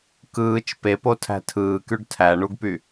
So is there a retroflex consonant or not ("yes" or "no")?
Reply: yes